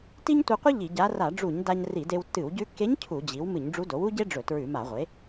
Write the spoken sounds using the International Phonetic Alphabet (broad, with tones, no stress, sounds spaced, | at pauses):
t i˥ ɲ tʷ ɨ˧ qʷ ɨ˥ ʎ i˧˩˧ ɟ a˧˥ r a˧˩˧ ɖ͡ʐ u˧˩˧ ɲ d a˧ ɲ r i˧˩˧ d e˧ w tː ɨ˧˩˧ w ɟ ʉ˧ kː e˧˥ ɲ cʰ u˧˩˧ d͡ʑ i˩˥ w m ɨ˧˩˧ ɲ ɖ͡ʐ u˧˥ d o˩˥ w u˥ ɟ e˥ ɖ͡ʐ ɵ˧˩˧ t ɹ ʉ˧˩˧ m a˧˩˧ ʁʷ e˩˥